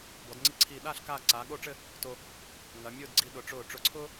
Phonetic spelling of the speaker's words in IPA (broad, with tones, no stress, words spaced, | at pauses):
bɔ˩˧d ŋ͡ǀi˧ǀʰiː˧˩ɗaː˥˧ɬ kaː˥˧ ǀaː˩˧ɠo˥˧ʈ͡ʂɘ˥˧ | to˧ | ŋɐ˩˧mʲʊː˥˧dɡ͡ǀi˧ ɗʊ˩˧ʈ͡ʂʊː˧˩ ʈ͡ʂʊ˧˩ǀʰʊː˥